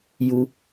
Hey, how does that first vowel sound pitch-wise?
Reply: high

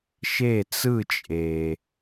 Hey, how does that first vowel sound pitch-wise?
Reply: falling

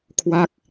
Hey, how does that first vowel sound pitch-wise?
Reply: falling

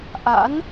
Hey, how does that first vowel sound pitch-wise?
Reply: rising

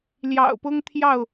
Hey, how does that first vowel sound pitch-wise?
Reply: low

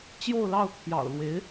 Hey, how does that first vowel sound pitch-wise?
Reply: falling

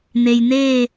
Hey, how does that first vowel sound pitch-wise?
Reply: low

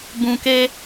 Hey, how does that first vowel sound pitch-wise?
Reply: low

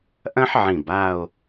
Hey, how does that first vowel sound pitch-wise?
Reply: high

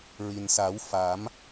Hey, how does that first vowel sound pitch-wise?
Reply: low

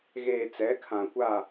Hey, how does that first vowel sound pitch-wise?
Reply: low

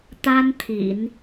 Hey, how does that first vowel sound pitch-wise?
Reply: high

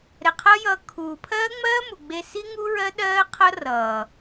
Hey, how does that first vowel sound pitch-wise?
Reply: low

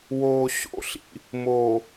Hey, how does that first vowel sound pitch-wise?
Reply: low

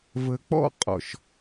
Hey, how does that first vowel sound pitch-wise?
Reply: low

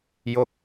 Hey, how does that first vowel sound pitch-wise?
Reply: falling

